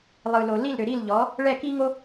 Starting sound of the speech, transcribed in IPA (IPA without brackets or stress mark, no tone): lˠ